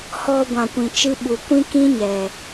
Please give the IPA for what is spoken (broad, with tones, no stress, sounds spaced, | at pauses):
h ɔ˧ ɡʷ ã˨ kʷ ĩ˨ t͡ʃ ɨ˧ ɓ u˨ kʷ ĩ˦ k ĩ˦ ɲ ɛ˨